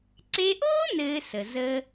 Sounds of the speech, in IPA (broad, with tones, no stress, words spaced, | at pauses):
ǀe˧ʔoː˥ nɘː˧sə˩ zəː˧